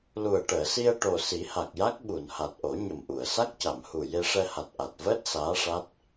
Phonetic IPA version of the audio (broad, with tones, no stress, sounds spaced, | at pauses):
l u˨˩ ə̯ ʈ əː˨˩˨ s i˧ ə̯ ʈ o˨˩ s i˨˩˦ h a˨˩ k̚ j a˦˥ k̚ ɓ u˨˩˨ n h a˨˩ t̚ ʔ o˨˩˦ ɲ ə˨˩ m ʔ u˨˩˨ ə̯ s a˦˥ k̚ c a˨˩˨ m h u˨˩ j e˧ ʂ ɛ˧ h a˨˩ t̚ ʔ a˨˩ t̚ v əː˦˥ t̚ s aː˧˥ ʂ a˦˥ t̚